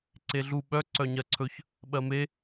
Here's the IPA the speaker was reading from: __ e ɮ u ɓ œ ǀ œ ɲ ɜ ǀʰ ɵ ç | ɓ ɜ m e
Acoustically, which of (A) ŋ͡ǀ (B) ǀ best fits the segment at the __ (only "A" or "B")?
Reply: B